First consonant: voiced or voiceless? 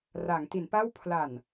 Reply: voiced